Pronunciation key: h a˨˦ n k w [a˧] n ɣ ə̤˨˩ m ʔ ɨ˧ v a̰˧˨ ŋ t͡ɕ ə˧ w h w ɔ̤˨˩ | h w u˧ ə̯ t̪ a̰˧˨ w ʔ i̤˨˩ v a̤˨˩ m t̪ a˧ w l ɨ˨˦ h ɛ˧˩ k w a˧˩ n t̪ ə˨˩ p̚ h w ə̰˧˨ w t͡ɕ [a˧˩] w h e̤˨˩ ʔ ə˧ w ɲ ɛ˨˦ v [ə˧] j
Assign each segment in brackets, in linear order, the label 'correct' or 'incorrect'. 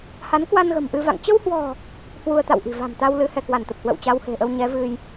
correct, incorrect, incorrect

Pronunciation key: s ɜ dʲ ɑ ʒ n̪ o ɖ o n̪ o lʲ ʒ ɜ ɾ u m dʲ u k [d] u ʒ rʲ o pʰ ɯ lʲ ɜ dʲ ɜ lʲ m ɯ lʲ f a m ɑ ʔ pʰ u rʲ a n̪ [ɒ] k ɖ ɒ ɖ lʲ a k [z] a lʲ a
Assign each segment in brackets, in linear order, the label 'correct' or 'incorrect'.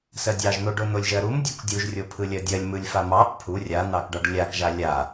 incorrect, incorrect, incorrect

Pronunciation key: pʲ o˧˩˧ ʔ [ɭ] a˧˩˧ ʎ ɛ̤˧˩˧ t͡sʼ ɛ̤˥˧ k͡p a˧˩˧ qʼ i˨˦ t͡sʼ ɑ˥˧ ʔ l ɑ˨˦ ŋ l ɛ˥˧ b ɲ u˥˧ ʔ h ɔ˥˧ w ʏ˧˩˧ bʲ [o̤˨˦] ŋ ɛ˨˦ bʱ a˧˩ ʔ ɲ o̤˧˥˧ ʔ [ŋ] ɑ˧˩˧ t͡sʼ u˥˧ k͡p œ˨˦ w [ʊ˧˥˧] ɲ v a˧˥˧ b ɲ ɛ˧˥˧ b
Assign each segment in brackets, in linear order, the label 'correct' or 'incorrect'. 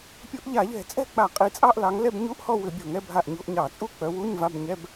incorrect, incorrect, incorrect, incorrect

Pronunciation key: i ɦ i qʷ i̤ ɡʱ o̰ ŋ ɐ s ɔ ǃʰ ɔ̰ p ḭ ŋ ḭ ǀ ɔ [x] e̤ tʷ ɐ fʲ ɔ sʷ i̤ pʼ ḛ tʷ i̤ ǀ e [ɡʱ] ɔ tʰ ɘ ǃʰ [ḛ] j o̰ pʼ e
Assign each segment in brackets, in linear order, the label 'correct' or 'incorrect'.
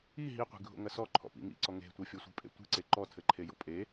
incorrect, incorrect, incorrect

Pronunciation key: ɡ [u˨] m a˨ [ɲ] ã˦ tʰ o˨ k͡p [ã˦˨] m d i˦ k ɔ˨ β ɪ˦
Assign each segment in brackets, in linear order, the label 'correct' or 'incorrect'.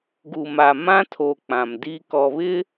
correct, incorrect, incorrect

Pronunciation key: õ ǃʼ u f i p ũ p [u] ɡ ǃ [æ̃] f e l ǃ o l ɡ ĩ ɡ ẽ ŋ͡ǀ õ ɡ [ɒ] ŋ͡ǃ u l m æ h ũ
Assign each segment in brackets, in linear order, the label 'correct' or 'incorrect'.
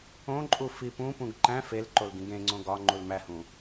incorrect, correct, correct

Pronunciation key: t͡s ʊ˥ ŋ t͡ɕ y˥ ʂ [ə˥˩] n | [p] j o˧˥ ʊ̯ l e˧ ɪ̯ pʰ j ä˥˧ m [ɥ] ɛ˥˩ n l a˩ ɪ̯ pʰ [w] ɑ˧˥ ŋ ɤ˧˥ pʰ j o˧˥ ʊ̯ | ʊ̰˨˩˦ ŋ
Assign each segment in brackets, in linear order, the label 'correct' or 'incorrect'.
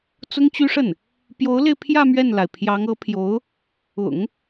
correct, correct, correct, incorrect

